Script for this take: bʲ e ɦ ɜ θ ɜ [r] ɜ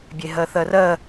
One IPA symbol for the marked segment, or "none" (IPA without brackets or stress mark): r